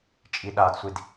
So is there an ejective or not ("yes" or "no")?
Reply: yes